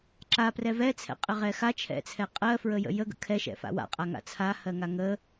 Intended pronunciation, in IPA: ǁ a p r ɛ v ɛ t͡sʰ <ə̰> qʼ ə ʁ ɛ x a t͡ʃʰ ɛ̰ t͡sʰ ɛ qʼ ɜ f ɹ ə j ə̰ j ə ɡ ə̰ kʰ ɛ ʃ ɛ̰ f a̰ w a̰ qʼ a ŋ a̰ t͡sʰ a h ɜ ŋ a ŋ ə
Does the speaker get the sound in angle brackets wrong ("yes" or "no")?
yes